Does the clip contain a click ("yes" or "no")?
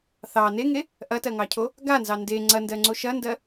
yes